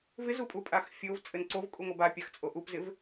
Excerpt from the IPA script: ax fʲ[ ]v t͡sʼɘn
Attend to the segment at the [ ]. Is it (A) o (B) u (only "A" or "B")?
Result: A